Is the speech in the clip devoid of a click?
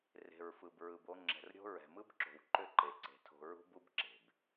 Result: no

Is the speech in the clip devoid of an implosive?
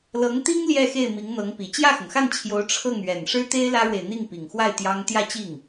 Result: yes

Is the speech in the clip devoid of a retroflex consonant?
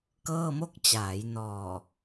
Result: yes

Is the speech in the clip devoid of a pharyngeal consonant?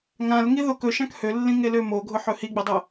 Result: no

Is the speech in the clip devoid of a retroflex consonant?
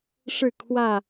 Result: no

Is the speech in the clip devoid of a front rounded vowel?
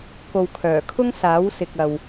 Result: no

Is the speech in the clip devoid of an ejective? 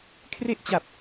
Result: yes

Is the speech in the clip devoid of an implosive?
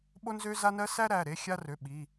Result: no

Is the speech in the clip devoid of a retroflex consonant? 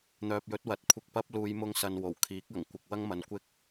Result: yes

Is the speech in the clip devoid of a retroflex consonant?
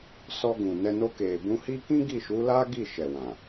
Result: yes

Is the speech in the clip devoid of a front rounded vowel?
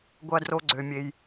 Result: no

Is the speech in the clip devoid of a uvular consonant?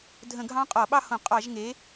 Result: no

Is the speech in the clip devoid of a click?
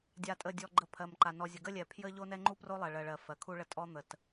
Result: no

